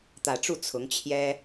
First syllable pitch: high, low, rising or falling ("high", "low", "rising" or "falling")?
low